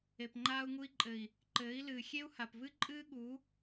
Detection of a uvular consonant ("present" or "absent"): absent